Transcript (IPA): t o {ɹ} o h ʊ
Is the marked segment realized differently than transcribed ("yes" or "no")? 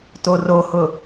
yes